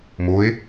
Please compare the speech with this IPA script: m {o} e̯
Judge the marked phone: correct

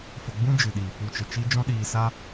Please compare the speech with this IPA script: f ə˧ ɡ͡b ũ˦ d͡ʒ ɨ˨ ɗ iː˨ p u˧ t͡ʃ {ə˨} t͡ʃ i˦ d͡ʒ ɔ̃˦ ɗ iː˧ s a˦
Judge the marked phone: correct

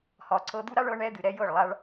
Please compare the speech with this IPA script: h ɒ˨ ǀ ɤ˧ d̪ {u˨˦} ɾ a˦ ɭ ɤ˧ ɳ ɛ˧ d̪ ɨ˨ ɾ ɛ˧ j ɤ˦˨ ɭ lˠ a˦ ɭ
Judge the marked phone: incorrect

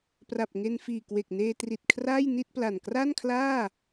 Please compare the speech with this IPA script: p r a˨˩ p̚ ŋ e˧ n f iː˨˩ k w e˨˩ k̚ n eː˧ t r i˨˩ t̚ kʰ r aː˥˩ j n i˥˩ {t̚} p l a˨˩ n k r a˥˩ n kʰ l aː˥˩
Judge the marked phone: correct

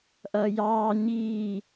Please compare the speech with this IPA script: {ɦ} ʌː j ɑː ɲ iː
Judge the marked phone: incorrect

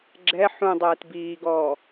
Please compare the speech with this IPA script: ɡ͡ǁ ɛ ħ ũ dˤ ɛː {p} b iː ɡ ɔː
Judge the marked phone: incorrect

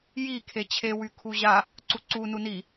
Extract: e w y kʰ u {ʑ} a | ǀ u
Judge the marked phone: correct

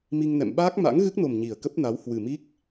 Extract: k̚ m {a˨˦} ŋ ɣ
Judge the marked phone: incorrect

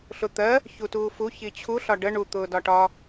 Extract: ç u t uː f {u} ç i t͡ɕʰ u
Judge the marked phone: correct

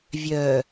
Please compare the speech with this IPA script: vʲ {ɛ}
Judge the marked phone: incorrect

